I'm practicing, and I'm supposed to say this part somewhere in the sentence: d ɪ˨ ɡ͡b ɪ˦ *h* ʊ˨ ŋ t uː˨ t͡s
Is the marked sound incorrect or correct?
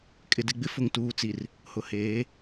incorrect